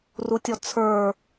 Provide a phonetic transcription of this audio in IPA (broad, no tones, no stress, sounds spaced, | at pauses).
r u tʲ ɔ t͡sʰ ə˞